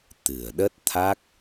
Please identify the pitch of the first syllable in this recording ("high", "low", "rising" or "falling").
low